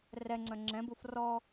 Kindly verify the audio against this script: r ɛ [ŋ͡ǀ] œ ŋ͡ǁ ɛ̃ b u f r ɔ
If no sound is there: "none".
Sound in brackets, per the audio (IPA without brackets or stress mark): ŋ͡ǀ